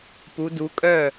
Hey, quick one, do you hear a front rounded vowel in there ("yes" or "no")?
yes